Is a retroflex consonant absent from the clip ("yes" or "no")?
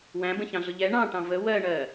no